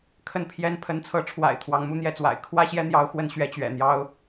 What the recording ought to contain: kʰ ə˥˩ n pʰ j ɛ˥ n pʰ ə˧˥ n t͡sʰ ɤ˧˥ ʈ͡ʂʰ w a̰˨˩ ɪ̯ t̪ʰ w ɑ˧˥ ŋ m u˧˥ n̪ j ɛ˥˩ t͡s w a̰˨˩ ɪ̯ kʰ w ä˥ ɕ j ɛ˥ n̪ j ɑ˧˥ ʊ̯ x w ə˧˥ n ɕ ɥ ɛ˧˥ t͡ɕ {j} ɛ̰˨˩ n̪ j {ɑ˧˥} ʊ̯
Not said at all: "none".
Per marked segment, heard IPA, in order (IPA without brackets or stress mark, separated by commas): ɥ, ɑ˥